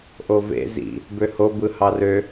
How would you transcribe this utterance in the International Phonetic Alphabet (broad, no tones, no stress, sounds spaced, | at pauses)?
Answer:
ʔ o v ḛ z ḭ | b ø h o b ɯ h ɑ r ø